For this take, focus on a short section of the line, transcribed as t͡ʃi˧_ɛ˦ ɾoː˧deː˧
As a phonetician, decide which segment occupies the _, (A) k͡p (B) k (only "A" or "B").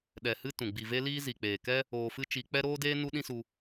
A